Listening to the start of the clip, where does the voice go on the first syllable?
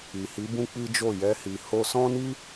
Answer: low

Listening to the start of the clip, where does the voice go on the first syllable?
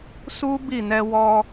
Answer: high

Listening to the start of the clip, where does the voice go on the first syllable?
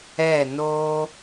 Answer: falling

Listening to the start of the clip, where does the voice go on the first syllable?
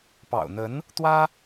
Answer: low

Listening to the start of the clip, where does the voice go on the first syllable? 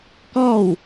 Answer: falling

